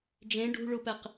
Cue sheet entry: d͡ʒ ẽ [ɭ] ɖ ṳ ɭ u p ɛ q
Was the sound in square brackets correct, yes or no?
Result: no